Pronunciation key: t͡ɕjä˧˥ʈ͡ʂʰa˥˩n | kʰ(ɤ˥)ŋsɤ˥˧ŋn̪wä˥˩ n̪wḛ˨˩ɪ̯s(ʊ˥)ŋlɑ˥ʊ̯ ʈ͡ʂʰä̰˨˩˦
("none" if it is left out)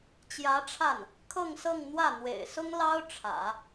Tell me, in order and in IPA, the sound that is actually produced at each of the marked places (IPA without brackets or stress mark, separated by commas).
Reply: ɤ˥˧, ʊ˥